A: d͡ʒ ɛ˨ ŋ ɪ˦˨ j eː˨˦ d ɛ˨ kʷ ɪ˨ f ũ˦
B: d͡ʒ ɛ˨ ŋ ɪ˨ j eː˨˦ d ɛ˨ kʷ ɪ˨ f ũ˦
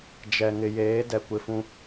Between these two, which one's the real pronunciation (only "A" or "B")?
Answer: B